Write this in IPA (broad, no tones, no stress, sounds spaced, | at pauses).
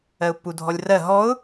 ɜ ʊ̯ pː u dʱ ɔ lʲ r ɜ ɦ ɔ ʊ̯